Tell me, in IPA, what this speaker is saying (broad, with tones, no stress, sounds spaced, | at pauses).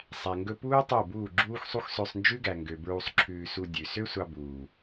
sˤ æ˨ ŋ ɡ ɵ˧ p uː˦ tˤ o˦˨ b uː˦˨ ɡ͡ǁ uː˦ x sˤ u˦ x s ø˧ sˤ n d͡ʒ ʉ˦ ɡ æ˨ ŋ ɡ ø˨ b ɹ u˧ sˤ ǁʰ ʉː˧ s u˧ dʲ ʉ˨ s ø˦ sʷ ɑ˧ b uː˨